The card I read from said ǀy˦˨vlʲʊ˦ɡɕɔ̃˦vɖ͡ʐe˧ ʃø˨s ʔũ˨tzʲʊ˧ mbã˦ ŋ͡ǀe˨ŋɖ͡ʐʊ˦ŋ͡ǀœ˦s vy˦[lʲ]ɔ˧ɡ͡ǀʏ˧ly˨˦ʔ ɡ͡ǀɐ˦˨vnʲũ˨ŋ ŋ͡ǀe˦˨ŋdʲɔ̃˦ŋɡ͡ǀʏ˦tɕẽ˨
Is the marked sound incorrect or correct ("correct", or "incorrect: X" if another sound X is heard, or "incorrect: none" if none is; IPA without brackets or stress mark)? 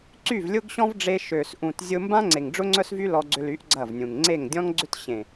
incorrect: l